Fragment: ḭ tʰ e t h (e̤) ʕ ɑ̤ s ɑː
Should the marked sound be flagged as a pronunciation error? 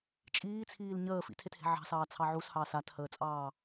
no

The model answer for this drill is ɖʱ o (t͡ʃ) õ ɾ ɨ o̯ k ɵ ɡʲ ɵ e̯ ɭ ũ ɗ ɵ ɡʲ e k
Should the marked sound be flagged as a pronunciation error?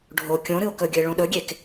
yes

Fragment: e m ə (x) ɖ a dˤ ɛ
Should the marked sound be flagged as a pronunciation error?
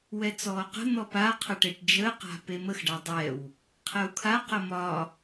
no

